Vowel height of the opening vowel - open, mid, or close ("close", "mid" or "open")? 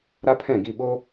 open